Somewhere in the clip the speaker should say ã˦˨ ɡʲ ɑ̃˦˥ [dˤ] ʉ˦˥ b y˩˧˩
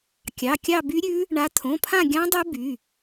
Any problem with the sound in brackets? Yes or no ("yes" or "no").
no